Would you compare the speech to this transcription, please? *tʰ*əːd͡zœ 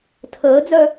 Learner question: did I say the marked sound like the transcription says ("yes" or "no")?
yes